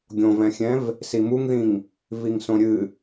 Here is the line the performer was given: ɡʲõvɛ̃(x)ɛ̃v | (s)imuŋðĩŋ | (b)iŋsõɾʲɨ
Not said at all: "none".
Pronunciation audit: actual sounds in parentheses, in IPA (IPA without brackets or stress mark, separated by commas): xʲ, s, v